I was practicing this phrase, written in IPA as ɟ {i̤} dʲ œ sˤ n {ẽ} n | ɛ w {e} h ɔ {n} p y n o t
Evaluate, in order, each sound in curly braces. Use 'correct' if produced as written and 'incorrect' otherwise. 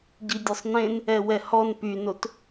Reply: incorrect, correct, incorrect, correct

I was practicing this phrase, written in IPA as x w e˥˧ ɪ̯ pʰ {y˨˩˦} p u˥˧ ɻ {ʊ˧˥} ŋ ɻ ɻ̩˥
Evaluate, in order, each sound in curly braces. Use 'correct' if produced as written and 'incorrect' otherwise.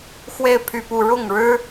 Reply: incorrect, incorrect

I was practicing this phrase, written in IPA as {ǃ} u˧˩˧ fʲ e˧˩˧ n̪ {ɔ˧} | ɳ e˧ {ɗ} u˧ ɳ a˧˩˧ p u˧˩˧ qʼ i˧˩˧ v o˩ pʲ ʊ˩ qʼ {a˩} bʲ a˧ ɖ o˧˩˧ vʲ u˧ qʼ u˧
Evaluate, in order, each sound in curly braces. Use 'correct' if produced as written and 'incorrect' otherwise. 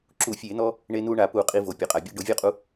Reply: incorrect, correct, incorrect, correct

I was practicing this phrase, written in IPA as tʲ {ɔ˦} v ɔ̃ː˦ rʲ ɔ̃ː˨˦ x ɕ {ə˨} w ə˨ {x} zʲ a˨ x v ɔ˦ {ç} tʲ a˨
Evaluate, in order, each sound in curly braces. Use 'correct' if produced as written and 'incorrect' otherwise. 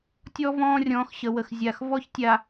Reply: correct, correct, correct, correct

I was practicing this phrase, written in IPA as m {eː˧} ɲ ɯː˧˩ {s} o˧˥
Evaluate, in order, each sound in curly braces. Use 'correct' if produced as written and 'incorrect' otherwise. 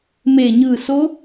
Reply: incorrect, correct

